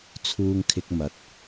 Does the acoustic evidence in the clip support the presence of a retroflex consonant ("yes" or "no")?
no